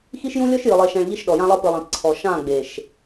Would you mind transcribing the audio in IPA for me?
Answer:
x i˦ ʃ j ũ˦ lʲ ɔ˦ ʃ j ɯ˨ lˠ e˨ ʃ ɛ̃˨ ɭ ʎ i˦ ʃ ɗ ɔ˨ j ã˦ lˠ ɤ˦ p ɯ˨ lˠ ẽ˨ p ǀʰ ɔ˨ ʃ ã˦˨ ɡ͡b e˨ ʃ

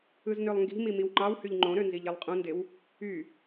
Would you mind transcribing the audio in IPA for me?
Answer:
ɯ z n ø lˠ ŋ ɡ i̤ m i m i w ŋ͡ǃ ɑ w h y ʎ ŋ͡ǃ õ ɾ ø n z i ʎ e lˠ qʼ ũ n d e w | y

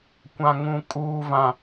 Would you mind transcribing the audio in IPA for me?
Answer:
kʷ ã˨ ŋ ũ˨ kʼ uː˨ v ã˨

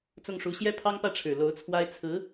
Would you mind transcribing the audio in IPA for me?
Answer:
t͡s ʊ˥˩ ŋ ʂ u˧˥ ɕ j ɛ˥ pʰ ɑ˥ ŋ p ä˥˩ ʈ͡ʂʰ ɻ̩˨˩ l o˧˥ ʊ̯ t͡sʰ w a˥ ɪ̯ t͡sʰ ɹ̩˧˥

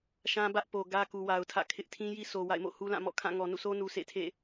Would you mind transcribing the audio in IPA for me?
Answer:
ʃ ã˦ b ä˦ ʔ p o˨ ɡ ä˦ k u˨ w a˨ ʊ̯ tʰ ä̰˦˨ kʰ ɪ˦ ʔ tʰ ĩ˦ j i˦ s o˨ w a̰˦˨ ɪ̯ m o̰˦˨ h u˦ l ã˦˨ m ɔ̰˦˨ kʰ ã˦˨ ŋ ɔ˨ n ṵ˦˨ s o˦ n u˨ s ḛ˦˨ tʰ ḛ˦˨

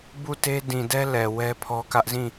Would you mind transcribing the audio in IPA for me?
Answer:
b u˦˨ t e˦ d ĩ˨ d ɛ˦ l ɛ˨ w ɛ˦ pʰ ɔ˦ k ä˦ ʔ z ĩ˦˨

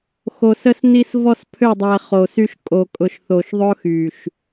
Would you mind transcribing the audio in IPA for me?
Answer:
x o˨ s ə˦ s n i˦ s v ɔ˦ s pʰ ø˦˨ dˤ ɛ˨ χ o˨ s y˦ ʃ kʼ o˨ kʼ ʊ˨ ʃ θ o˨ ʃ ðˤ ʊ˦ x y˨ ʃ

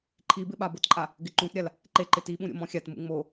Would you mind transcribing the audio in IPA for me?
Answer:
ǃʰ i b ɪ ɓ a b ʊ t ǃʼ a | ɡ ɪ ǃ ũ t ɾʲ a l | ǃ e ǃ ɪ t i ɓ ũ ɾʲ o̰ m ɔ̃ xʲ a t m ṵ ŋ͡m o

